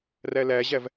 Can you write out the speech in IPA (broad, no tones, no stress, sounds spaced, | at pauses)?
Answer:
r æ l æ ʑ æ v